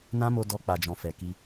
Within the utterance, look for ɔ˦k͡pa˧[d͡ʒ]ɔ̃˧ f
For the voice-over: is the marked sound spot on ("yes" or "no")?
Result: yes